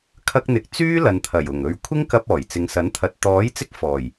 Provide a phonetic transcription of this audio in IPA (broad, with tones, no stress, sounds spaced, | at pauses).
kʰ ɐ˧ k̚ n̪ ɪ˨ k̚ t͡s yː˥ l ɐ˨ n t̪ʰ ɐ˨˩ j ʊ˨˩ ŋ ɵ˨ ɥ kʷʰ ɪ˥ ŋ k ɐ˧ p̚ ɔː˨˩ j t͡s ɪ˨˧ ŋ s ɐ˨˥ n t̪ʰ ɐ˨˥ t̚ t̪ ɔː˨˥ j t͡s ɪ˧ k̚ f ɔː˨˩ j